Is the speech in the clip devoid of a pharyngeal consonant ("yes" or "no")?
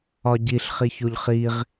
yes